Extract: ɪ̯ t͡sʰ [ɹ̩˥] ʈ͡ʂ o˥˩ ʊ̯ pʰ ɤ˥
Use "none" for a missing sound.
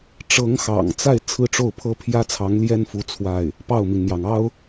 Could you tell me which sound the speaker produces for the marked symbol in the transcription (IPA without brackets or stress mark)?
ɹ̩˥˧